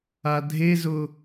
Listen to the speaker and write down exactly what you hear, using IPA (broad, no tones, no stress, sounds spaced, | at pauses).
a dʱ e z ʊ